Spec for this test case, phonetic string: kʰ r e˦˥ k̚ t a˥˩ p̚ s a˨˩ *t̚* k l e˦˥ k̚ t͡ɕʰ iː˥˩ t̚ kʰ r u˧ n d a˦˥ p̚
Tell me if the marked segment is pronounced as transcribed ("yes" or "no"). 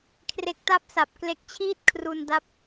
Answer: no